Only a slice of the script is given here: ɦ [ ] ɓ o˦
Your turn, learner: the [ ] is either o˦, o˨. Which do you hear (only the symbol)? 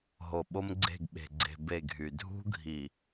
o˨